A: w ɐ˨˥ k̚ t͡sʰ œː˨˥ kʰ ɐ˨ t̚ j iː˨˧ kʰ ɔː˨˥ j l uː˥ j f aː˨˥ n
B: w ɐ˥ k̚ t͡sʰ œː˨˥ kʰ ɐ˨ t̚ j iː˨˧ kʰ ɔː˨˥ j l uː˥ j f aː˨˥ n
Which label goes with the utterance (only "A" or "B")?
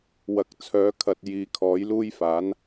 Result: A